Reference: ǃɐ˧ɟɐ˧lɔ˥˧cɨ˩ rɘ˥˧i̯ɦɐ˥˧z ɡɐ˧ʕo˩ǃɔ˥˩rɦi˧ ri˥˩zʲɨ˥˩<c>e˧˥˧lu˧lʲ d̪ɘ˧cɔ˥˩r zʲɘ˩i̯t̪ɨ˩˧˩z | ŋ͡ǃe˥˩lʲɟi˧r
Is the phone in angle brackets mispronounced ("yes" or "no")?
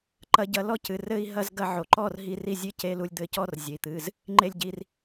no